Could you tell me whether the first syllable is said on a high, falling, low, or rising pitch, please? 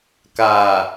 low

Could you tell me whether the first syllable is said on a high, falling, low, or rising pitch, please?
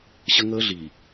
high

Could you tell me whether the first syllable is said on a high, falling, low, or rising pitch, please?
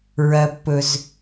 low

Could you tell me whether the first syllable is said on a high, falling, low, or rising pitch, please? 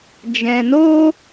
low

